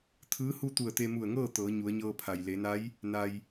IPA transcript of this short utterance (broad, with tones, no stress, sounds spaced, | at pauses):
t̪ʰ ɯː˧˥ h u˥˨ t̪ u˧˩ ə̯ t̪ e˧ m u˧˩ ə̯ ŋ ɤː˥˨ t̪ ɤː˩˧ ɲ u˩˧ ə̯ ɲ ɤː˧ pʰ a˩ j l e˩˧ n a˧˥ j | n a˩ j